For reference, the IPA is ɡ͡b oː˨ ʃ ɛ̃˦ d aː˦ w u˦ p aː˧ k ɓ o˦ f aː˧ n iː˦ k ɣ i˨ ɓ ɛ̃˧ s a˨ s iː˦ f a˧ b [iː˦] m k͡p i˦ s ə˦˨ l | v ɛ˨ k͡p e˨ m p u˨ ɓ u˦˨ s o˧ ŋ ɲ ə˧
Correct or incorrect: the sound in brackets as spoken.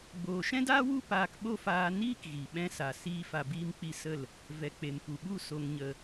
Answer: correct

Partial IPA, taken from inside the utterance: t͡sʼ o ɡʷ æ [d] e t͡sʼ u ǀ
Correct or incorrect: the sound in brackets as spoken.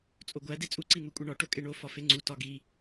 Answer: correct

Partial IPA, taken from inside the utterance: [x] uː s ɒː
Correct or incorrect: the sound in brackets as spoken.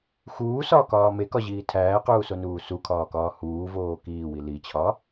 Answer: correct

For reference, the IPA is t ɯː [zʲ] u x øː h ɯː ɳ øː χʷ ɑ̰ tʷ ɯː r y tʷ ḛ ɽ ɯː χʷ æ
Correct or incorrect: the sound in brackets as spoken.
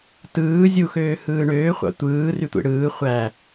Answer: correct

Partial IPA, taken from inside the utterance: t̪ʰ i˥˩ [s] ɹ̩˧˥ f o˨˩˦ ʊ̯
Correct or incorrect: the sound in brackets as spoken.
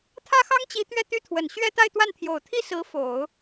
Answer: correct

